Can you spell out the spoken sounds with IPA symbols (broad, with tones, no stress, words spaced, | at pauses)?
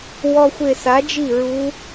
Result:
wɔ˧xʷe˧˩sa˩˥d͡ʒi˥˩ ɹu˧˥